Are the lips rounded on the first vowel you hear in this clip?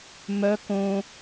yes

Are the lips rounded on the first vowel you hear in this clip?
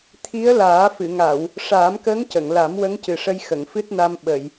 no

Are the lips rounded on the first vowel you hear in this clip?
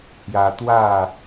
no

